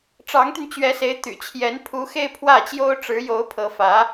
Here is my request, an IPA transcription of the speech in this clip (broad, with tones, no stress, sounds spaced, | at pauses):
ʈ͡ʂ ɑ˧˥ ŋ t̪ y˧ n t͡ɕ ɥ ɛ˧˥ s e˧˥ ɪ̯ t̪ y̰˨˩ t͡ɕʰ j ɛ˧˥ n pʰ u˧˥ x e˥˧ ɪ̯ pʰ w ä˥˩ t͡ɕ j o˥ ʊ̯ ʈ͡ʂ ɻ̩˧˥ j o˧˥ ʊ̯ pʰ ɤ˧˥ f ä˧˥